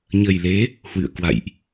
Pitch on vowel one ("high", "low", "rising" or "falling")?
low